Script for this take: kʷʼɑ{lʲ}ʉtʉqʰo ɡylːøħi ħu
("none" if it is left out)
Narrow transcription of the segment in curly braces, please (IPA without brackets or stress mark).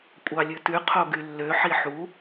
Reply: lʲ